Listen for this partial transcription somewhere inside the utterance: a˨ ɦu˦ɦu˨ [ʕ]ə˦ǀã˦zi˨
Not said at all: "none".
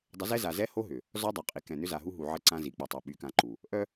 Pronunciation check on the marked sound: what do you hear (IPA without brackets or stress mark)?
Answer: ʕ